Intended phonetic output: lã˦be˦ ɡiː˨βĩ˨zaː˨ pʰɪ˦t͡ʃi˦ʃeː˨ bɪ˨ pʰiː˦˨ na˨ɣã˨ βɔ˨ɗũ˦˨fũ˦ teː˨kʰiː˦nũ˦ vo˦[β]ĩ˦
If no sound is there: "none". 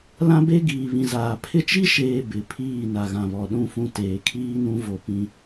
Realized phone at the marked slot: p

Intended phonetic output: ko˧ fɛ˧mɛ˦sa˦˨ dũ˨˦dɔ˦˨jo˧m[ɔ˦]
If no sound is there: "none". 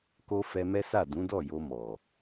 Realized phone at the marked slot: ɔ˨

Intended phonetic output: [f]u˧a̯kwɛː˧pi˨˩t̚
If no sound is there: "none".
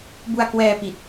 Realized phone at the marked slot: b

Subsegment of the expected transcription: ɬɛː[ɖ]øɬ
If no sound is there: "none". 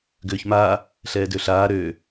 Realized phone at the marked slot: d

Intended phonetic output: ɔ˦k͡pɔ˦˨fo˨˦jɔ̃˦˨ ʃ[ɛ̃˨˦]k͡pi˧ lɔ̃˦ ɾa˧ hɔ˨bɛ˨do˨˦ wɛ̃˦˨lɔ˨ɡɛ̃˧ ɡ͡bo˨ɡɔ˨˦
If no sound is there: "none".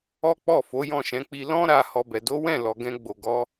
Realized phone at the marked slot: ɛ̃˨˦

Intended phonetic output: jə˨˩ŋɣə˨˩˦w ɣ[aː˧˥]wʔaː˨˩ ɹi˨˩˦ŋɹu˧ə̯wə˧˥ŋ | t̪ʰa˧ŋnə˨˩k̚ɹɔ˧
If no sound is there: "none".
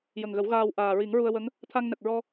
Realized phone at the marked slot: aː˧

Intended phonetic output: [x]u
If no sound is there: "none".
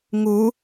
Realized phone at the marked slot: ŋ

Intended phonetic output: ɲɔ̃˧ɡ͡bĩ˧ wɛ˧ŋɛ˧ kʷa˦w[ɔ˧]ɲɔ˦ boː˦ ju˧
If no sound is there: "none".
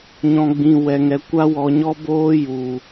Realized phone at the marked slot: ɔ˧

